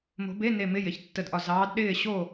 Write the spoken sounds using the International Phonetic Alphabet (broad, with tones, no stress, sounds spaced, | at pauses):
m o̤˨˦ b e˧˥˧ n e˧˩ m ɪ˧˥˧ j ɪ˩˧˩ ç tː ə˧˩ d ʔ ɒ˧˩ z ɑː˨˦ d ɗ ɪː˥˨ ɕ o˥˨